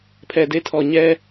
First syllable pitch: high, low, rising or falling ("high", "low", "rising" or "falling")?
low